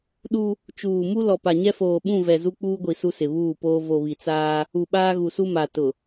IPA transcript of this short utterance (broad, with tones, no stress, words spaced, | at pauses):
ɗu˦ | t͡ʃuː˨mu˦ lɔ˨pa˨ɲɛ˦foː˨ ɓũ˦˨vɛ˨ zu˦k͡puː˦ɡʷi˨ su˦sɪ˨βuː˦˨poː˦ vo˨βi˨t͡saː˦ | u˨ɓaː˦ɣu˨su˦ ma˨ tʊ˨